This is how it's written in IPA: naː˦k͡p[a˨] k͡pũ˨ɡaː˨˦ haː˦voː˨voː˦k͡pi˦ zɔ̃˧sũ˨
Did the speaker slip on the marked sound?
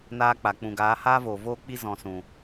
no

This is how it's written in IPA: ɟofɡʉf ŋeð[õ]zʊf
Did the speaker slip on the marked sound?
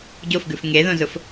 no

